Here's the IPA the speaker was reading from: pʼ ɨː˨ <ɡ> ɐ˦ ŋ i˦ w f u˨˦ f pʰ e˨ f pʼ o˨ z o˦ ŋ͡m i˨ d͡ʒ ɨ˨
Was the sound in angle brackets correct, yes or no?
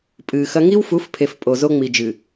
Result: no